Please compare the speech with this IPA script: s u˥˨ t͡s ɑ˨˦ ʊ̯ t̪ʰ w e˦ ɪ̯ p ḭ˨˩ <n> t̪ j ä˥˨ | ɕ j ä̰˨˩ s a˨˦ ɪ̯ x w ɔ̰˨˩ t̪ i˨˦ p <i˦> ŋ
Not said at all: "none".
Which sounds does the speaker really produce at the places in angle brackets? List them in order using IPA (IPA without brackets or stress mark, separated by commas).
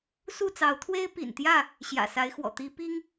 n, i˦